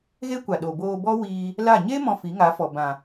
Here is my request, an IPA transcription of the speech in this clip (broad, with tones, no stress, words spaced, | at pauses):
ɣe˦kʷa˨ ɗo˨boː˧bɔ˦ wiː˧ | la˦˨ ɲe˦ mɔ̃˧fi˨˦ŋa˨˦fɔ˨ bã˨